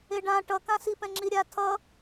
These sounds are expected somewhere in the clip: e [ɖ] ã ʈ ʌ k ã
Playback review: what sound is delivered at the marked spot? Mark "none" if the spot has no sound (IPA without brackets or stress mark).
ɖ